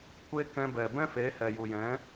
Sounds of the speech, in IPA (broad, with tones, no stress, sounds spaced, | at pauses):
kʷ e˧ k ɛ̃˧ b ɛ˨ b ɛ̃˦ f e˨˦ h ɛ˨ j u˨ j ɛ̃˨˦